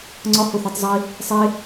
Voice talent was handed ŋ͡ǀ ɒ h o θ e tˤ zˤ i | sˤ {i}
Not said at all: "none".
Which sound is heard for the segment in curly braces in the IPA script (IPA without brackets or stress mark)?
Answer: e